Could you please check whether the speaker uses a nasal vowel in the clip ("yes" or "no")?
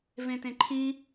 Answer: yes